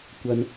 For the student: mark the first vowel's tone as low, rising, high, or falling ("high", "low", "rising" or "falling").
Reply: high